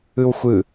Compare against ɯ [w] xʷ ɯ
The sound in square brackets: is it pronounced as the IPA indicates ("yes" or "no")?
yes